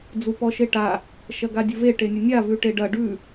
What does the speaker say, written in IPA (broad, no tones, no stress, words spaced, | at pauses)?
d͡zupɔʃeʈa | ʃɐɡadʲəve ʈenʲənʲa vʉʈeɖɐ ɖʉ